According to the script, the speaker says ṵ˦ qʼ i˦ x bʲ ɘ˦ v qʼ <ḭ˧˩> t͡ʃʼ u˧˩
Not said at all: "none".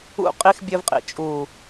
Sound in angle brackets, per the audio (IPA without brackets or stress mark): ḭ˧˩